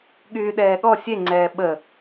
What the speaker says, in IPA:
ɠ yː ɗ ɛː ɠ ɔ sʲ e ŋ͡ǀ ɛː ɓ ə

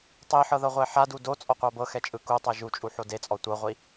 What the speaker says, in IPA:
tˤ i ħ ɤ ð ɤ ʁʷ ɛ ħ a d u d o t͡sʼ ɔ qʷ a b ɤ x ɛ t͡ʃʼ ɯ k u tˤ a ʒ u t͡ʃʼ u ħ o d e t͡sʼ ɔ tʷ ɤ ʁʷ i

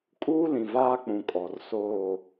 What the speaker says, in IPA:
kʼ uː˦ l ĩ˨ v aː˦ k͡p ũ˨ kʼ ɔ˨ r s oː˦˨

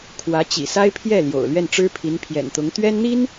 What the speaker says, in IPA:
kʰ w ä˧˥ t͡ɕ ḭ˨˩ s a˥ ɪ̯ pʰ j ɛ˥˩ l j o̰˨˩ ʊ̯ l ɥ ɛ˥˩ n ʈ͡ʂ ɻ̩˥ pʰ i˧˥ n pʰ j ɛ̰˨˩ n t̪ ʊ˧˥ ŋ t̪ ɥ ɛ˥ n n̪ i˥ n

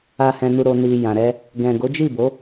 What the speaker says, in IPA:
a˨ h ɛ̃˨ n u˨ ɾ o˨ n i˨ j ã˨ ɾ ɛ˧ | ɡ ɛ̃˨ ɡ o˨˦ d͡ʒ i˦˨ b o˨˦

